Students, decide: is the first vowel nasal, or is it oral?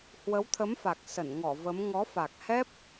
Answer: oral